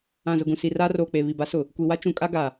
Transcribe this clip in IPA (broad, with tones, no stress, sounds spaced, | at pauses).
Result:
ã˨ z ʊ˨ ɡ ũ˨ s i˨ r aː˦ r oː˨ k͡p e˨ β i˨ b a˨˦ s ʊ˨ | kʷ i˨ w a˦ t͡ʃ ũ˨ kʼ a˦ ɡ a˨